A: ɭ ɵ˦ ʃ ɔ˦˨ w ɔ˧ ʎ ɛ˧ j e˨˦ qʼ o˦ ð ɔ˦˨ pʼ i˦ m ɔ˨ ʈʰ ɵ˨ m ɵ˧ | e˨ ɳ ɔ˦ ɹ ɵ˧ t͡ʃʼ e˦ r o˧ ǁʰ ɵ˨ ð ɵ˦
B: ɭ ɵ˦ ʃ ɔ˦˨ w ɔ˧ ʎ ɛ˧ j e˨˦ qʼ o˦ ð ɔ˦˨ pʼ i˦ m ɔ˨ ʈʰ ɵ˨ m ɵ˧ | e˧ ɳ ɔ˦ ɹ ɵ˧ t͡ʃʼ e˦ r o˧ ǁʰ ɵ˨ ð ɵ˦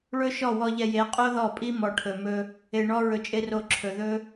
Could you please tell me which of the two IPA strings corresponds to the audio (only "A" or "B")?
B